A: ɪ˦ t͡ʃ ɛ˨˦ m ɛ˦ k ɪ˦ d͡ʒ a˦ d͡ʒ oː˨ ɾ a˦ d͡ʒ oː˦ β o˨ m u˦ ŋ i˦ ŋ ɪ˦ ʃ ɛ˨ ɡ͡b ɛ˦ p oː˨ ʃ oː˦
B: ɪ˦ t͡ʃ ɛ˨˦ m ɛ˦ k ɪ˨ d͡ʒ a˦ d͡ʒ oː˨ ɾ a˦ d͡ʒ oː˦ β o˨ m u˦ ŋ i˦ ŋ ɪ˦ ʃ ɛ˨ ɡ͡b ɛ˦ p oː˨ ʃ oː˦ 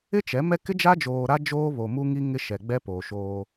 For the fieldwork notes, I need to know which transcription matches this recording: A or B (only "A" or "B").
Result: A